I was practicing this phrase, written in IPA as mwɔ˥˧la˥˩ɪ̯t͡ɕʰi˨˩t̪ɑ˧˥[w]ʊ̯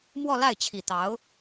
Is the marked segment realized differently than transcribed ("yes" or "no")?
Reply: yes